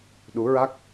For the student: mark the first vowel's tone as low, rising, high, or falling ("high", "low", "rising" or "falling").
rising